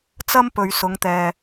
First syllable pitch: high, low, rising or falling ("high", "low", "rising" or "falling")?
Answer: high